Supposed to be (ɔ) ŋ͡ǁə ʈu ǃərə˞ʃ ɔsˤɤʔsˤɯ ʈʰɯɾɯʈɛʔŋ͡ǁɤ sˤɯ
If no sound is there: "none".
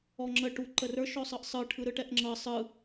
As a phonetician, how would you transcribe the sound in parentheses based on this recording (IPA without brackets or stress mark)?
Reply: ɔ